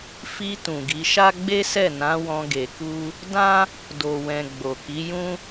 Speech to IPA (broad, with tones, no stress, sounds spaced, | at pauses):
f i˧ t ũ˨ ɡ i˨˦ ʃ a˦ ɡ͡b e˦ s ɛ˦˨ n ã˨˦ w ɔ̃˧ ɡ e˧ k u˦ | d ã˦ | d o˨ w ɛ̃˨ ɡ͡b o˨ k i˨˦ j ũ˦